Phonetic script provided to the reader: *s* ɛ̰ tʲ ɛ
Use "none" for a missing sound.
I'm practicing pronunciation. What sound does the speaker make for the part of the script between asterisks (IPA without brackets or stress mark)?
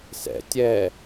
s